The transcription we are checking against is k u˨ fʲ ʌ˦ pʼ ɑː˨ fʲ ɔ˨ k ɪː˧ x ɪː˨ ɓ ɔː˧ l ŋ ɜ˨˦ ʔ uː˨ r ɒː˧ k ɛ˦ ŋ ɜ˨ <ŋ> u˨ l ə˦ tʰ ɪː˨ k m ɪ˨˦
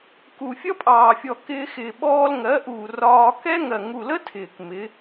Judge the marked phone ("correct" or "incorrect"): correct